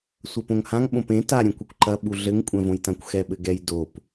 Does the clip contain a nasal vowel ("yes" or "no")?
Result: yes